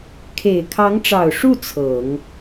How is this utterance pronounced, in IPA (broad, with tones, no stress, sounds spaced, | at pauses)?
kʰ e˨˩ ɪ̯ kʰ ɑ˧˥ ŋ ʈ͡ʂ ɑ˨˩ ʊ̯ ʂ u˥˩ t͡sʰ ɤ˨˩˦ ŋ